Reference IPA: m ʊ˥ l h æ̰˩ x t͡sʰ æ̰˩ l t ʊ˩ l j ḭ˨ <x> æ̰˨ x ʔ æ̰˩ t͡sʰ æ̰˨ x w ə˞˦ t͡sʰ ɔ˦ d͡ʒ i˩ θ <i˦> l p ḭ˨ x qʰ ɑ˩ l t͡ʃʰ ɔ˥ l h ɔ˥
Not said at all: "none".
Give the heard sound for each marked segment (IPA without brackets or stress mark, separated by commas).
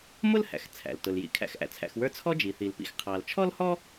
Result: kʰ, i˩